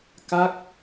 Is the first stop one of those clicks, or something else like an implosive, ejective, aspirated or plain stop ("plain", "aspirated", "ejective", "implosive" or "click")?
plain